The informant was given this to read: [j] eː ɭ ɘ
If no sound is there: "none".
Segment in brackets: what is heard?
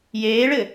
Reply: j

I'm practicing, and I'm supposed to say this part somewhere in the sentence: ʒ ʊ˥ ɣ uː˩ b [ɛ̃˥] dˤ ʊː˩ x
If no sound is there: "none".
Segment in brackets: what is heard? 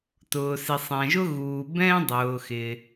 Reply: ɛ̃˥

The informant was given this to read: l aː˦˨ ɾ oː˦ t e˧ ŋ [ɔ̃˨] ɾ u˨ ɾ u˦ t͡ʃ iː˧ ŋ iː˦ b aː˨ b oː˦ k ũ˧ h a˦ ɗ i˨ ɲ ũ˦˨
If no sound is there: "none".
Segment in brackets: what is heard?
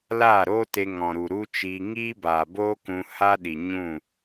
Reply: ɔ̃˨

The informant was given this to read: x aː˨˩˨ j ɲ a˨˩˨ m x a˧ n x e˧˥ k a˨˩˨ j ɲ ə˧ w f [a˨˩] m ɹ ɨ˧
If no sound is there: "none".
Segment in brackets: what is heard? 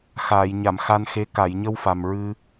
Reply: a˨˩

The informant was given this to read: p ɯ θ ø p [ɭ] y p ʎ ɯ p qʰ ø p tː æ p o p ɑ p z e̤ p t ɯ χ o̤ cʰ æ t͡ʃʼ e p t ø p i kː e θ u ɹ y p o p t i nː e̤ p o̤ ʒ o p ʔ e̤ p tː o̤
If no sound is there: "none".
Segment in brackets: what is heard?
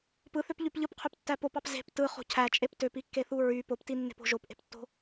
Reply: ʎ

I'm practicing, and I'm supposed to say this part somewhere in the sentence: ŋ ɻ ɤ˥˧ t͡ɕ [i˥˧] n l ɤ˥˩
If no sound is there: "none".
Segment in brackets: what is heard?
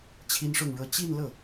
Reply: i˥˧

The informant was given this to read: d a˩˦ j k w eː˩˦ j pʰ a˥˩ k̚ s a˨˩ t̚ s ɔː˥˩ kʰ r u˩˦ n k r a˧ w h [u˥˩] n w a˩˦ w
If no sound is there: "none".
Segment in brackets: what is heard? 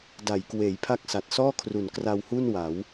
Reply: u˥˩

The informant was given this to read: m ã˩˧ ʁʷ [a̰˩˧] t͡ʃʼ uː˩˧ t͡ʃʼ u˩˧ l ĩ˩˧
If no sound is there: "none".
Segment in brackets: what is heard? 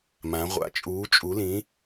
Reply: a̰˩˧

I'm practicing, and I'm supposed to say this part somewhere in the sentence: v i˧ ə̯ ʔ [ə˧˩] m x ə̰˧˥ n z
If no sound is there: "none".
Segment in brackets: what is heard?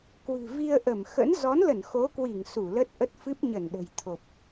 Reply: ə˧˩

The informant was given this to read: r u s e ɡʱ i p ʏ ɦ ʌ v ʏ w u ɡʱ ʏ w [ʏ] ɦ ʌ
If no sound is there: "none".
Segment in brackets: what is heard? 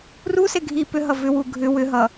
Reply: ʏ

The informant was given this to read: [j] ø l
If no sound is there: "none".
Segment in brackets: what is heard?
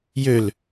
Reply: j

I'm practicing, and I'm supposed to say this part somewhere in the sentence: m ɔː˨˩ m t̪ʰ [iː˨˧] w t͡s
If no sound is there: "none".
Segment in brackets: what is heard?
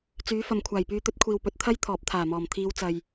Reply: iː˨˧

